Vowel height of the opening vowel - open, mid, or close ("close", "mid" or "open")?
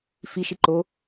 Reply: close